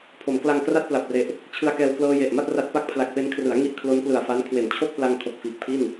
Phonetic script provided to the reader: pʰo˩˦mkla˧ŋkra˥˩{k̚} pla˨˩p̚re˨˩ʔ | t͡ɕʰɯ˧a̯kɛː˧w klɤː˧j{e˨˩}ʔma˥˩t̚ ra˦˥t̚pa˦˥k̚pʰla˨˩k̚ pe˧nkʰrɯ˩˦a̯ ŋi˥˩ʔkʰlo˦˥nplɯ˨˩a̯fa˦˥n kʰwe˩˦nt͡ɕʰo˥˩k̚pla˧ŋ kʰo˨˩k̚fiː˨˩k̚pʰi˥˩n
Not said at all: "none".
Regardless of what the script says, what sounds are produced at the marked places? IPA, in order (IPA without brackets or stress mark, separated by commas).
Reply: t̚, e˨˩